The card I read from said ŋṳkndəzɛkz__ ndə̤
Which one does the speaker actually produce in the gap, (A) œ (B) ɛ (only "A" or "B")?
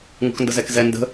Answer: B